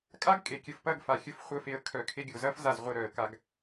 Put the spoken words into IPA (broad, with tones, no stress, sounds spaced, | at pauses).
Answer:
kʼ a˦ ɡ kʼ e˨ kʲ ə˨ f p ɐ˦˨ ɡ f a˨ xʲ ə˧ f χʷ ə˧ f e˧ ə̯ kʰ œ˨ kʰ e˧ ɡʲ o˨ z ɐ˦ f z a˦˨ z ʁʷ e˧ ɾ œ˨ ə̯ k a˧ ɡ